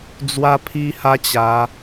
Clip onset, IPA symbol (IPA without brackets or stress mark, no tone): d͡z